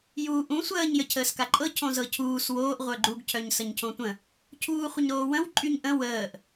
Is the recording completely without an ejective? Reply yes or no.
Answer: no